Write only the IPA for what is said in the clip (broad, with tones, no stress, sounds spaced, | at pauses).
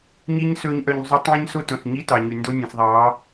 ɲ i˦ ɲ s ɵː˦ ɲ ʔ œ˧ ɲ zˤ y˦ tˤ ẽ˦ ɲ s o˦ t õ˨ s ɲ i˦ t ɑ˨ ɲ y˨ n d o˦ nʲ ẽ˨ s ðˤ ɑː˨˦